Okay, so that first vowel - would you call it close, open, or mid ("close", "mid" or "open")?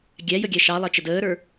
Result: open